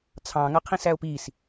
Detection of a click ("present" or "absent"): absent